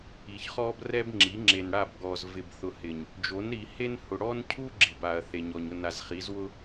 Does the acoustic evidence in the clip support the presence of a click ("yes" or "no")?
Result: yes